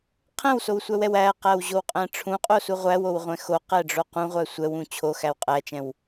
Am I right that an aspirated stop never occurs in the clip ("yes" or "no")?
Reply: no